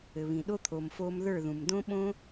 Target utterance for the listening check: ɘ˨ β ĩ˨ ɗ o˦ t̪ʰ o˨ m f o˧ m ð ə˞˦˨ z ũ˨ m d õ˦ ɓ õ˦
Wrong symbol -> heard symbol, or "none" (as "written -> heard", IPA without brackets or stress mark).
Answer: z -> ð